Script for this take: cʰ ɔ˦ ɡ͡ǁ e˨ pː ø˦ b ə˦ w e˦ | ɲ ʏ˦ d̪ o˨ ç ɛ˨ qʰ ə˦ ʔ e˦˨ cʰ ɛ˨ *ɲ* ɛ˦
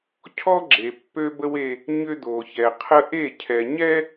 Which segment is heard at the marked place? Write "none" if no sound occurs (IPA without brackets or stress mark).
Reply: ɲ